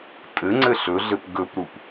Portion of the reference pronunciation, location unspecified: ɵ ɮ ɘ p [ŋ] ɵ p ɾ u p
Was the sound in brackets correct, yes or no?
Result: no